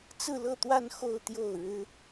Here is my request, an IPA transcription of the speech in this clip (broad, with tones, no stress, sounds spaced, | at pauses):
t͡s ɹ̩˥˧ l ɤ˥˧ t̪ w a˥˧ n x o˥˧ ʊ̯ t̪ j o˥˩ ʊ̯ ɻ ɻ̩˥